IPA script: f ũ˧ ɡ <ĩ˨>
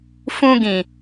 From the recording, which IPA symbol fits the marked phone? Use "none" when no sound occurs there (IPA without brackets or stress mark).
ĩ˨